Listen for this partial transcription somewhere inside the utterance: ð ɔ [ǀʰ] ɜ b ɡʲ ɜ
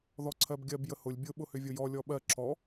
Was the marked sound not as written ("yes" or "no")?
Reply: no